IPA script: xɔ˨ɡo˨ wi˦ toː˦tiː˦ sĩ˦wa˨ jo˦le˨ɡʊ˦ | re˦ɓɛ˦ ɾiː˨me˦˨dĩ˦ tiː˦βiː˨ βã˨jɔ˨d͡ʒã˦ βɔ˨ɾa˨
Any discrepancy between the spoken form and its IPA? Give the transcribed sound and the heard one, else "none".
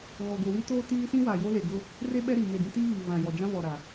x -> ɣ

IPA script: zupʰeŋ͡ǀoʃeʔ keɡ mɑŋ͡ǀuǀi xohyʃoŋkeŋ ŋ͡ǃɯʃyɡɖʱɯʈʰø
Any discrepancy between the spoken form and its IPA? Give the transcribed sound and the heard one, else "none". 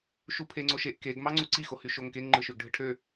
z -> ʃ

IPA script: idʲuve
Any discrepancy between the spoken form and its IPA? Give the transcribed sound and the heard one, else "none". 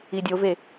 u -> o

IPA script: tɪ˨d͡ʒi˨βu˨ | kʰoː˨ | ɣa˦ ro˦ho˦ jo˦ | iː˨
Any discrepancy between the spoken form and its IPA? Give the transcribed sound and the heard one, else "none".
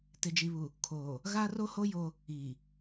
none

